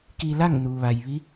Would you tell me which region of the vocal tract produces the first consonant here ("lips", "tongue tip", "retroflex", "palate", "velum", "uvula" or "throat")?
velum